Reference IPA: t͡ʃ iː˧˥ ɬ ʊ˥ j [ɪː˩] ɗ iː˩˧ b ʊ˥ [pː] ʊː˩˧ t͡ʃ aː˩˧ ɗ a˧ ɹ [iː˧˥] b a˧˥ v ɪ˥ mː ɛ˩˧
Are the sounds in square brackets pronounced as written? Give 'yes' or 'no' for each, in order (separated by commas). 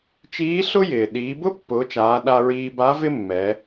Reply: yes, yes, no